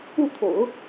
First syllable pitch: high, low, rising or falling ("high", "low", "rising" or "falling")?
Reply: falling